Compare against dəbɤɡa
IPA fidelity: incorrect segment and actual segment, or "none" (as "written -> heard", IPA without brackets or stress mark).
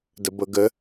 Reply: a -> ə